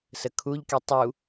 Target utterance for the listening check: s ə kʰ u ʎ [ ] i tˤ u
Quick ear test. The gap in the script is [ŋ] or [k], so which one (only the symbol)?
k